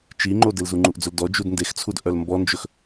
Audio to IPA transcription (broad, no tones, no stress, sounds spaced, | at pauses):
t͡ʃ i ŋ͡ǃ o d e l z u ŋ͡ǃ u ʔ d͡z ɵ l d ɔ d͡ʒ u d n d e x t͡sʰ u d ʔ œ l m b ɔ n d͡ʒ ɵ x